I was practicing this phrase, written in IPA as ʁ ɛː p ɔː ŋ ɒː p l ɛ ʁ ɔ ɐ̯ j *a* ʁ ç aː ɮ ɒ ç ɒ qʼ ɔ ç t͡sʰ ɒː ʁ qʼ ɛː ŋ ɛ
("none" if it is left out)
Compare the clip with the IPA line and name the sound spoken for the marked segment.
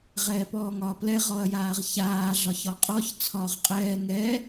aː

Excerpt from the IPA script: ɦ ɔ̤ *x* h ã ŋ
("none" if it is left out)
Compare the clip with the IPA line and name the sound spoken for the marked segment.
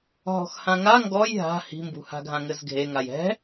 x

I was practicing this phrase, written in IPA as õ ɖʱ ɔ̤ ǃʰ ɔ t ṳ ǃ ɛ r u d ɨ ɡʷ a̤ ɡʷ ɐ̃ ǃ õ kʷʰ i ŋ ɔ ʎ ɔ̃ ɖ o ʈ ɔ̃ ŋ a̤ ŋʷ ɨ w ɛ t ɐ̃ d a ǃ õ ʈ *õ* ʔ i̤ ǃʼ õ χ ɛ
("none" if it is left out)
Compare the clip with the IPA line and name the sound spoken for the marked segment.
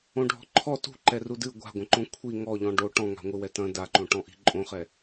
ɔ̃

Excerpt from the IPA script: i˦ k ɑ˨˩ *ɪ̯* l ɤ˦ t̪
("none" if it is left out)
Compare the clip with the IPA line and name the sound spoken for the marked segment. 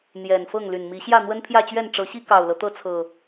ʊ̯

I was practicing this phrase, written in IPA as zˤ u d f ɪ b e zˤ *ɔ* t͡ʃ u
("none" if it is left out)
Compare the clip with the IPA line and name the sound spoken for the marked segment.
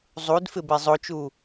o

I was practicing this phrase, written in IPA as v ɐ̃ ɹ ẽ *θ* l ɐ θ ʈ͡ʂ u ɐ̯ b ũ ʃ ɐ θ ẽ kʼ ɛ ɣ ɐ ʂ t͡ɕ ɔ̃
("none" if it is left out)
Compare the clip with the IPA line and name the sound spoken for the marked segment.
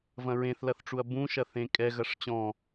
θ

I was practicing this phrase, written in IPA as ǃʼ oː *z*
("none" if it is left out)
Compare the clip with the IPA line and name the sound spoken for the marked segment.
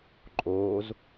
z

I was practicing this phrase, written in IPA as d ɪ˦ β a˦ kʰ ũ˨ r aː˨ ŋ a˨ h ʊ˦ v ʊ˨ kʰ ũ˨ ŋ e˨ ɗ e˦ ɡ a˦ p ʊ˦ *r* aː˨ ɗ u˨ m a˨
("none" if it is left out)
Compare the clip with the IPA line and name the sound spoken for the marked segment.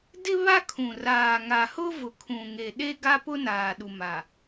n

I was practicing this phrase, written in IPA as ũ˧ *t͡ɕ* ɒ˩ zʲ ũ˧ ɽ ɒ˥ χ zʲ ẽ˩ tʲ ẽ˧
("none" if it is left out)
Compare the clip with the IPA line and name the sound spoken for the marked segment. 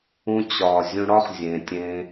t͡ɕ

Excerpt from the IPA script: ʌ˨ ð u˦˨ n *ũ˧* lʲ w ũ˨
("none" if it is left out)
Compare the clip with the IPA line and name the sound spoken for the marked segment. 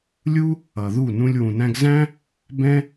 ũ˧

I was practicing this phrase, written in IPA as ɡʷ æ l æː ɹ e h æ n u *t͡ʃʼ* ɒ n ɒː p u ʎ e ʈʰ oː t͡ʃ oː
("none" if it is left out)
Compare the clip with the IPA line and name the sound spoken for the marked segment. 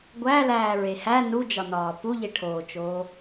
d͡ʒ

